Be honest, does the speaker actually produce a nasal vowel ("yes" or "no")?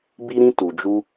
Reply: yes